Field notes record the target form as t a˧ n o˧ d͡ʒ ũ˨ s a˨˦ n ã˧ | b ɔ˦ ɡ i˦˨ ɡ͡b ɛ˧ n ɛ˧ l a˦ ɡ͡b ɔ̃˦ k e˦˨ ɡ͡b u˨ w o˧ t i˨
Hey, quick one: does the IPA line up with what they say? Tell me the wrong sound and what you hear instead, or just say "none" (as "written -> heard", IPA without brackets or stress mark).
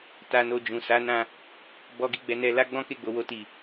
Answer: u˨ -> o˨